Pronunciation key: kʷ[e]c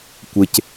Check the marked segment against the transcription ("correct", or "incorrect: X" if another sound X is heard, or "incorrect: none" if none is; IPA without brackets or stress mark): correct